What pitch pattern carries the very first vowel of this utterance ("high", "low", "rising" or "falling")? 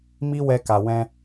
high